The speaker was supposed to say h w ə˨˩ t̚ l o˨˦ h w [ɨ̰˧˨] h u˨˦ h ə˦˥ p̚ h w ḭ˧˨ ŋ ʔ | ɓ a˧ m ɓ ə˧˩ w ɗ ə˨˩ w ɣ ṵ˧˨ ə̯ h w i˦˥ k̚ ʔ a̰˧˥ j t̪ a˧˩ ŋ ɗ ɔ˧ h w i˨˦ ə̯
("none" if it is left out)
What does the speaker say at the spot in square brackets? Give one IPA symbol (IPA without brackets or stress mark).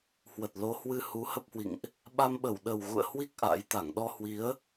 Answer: ɨ˧